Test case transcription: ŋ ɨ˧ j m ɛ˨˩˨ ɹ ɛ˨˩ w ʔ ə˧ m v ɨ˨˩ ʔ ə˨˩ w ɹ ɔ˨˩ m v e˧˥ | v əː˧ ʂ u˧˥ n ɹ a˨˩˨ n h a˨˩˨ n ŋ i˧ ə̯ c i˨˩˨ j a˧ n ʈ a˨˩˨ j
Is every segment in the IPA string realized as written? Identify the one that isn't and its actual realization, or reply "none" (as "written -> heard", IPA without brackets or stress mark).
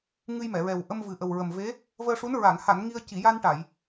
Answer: ɔ˨˩ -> ə˨˩